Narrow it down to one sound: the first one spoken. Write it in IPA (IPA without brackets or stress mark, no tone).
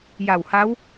j